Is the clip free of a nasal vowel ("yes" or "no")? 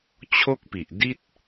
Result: yes